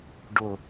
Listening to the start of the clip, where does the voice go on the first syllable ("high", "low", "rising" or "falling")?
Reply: low